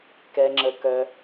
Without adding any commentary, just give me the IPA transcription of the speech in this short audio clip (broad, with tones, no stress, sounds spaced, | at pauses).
k ɛ˩ ŋ͡ǁ ə˩ k œ˩